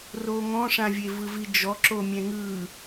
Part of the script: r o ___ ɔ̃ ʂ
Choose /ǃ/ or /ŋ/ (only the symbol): ŋ